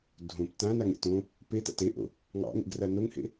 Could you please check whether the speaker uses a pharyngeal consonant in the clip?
no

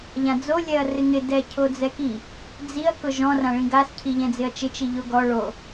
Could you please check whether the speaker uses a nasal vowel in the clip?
yes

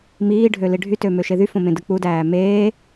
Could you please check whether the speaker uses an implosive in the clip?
no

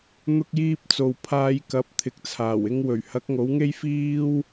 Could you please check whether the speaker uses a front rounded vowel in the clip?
no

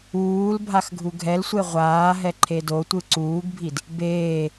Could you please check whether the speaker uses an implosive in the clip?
no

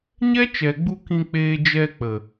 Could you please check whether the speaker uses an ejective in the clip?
no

